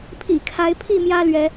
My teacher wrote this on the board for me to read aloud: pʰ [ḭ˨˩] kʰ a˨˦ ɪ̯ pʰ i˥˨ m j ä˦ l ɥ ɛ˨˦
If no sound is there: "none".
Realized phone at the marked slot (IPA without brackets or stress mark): ḭ˨˩